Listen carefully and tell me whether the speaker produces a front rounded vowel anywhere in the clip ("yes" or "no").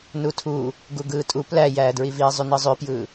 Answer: yes